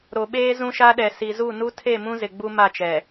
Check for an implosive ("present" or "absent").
present